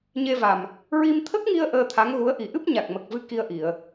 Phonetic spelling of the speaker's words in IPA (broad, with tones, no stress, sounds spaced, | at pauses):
ɲ e˧ v a˨˩ m | ɹ i˧ m t̪ʰ ə˦˥ k̚ ŋ i˧ ə̯ ʔ əː˧ t̪ʰ a˧˥ ŋ ɣ u˧˥ ə̯ ʔ i˨˩ ʔ ɨ˦˥ p̚ ɲ a˨˩ k̚ m ə˨˩ k̚ v ɨ˧ k i˧ ə̯ ʔ i˨˩˨ ə̯